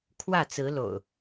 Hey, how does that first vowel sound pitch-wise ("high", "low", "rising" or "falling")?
falling